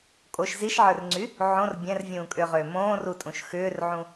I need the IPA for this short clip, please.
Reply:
kʼ o ʃ z i ʃ ʕ ə˞ r ŋ͡ǀ y | ʕ õ r bʲ ɛ̃ r vʲ ũː kʼ ʏː ʁ ʏː m õː r u tʼ ũ ʃ x ʏː r ʕ ũ

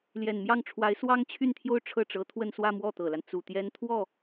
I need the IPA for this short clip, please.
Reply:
l j ɛ˨˩ n m j ɑ˥˩ ŋ ʈ͡ʂʰ w a˧˥ ɪ̯ s w ɑ˥ ŋ t͡ɕʰ y˥˧ n t̪ʰ j o˥˧ ʊ̯ ʈ͡ʂʰ ɤ˥˩ ʈ͡ʂ ɤ˧˥ t̪ʰ w ə˥˧ n s w ä˥˧ m w ɔ˥˩ t̪ ɤ˨˩ l a˦ n t͡s u˨˩ t̪ j ɛ˥ n t̪ʰ w ɔ˥˩

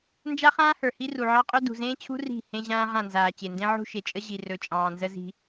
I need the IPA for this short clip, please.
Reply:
n d͡ʒ a˦ χ ãː˦ h ə˞˨ h i˦ r u˨ ʕ ɑ˦ qʼ ɵ˦ d ṳ˨ z ẽː˦ t͡ɕʰ ṳ˦ r i̤˦˨ h ẽ˦ ʑ ãː˦ ʁ ã˦˨ n z aː˨ t͡ɕ e˨ n d ẽ˦ ʕ ṳ˦ ʃ e˨ t͡ʃʼ ə˦ ʑ i˨ r ɵ˨ t͡ʃʼ ɑ̃ː˨ n z ə˦ z i̤˦

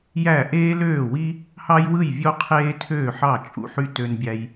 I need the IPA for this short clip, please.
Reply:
j æ˥˩ ʔ eː˥ l øː˥˩ w i˥ | h ɑ˥ j w ɯ˥˩ j vʲ o˥ qʰ eː˥ tʰ øː˥˩ ħ ɑ˥˩ t͡ʃʼ ṵ˥ ħ y˥ t ø˧ n bʲ æ˧ j

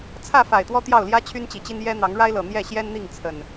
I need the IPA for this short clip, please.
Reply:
t͡sʰ ä˥˨ f a˨˩ ɪ̯ t̪ w ɔ˦ t̪ j ɑ˥˨ ʊ̯ l j ä˦ t͡ɕʰ y˦ n t͡ɕ i˨˩ t͡ɕ i˦ n j ɛ˦ n̪ ɑ˨˦ ŋ ɻ a˦ ɪ̯ l ɤ˨˩ n̪ j ɛ˥˨ ɕ j ɛ˦ n n̪ i˥˨ ŋ t͡sʰ ə˨˩ n

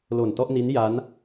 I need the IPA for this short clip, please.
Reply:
l o˨˩ n t ɔ˥˩ ʔ n i˦˥ n j a˦˥ n

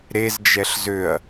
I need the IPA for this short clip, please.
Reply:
ɾ e z d͡ʒ ɛ ɬ z ø ɐ̯

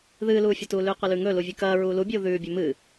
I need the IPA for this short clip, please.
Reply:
ð ɨː l uː fʲ ɐ t uː l ʉː qʷ ɐ l ʉ ŋ ɵ l u vʲ ʉ k ɐː ɹ uː l u bʲ uː ð ʉː bʲ ɵ m ɨ

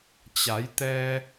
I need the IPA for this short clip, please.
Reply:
t͡ɕ a˩˧ j t̪ ɛː˧

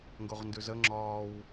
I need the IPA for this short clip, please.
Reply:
ŋ ɡ o ʁ n d ʉ z ə ŋ͡ǁ ɒː w

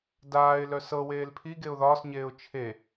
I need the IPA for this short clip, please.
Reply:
d aː ɪ̯ l œ s ɤ w eː l pʰ i ɡ e ʊ̯ ð ɒː s ɲ eː ʊ̯ t͡ʃʰ e

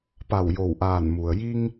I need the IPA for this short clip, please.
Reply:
p a˧˩ w j o˧˩ w ʔ aː˧˩ n m u˩ ə̯ j i˧ ŋ

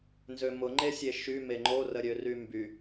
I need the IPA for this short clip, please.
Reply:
n z ø m ʊ ŋ͡ǃ e sʲ e ʃ y m e ŋ͡ǃ o r ə ɾʲ ø r y m b y

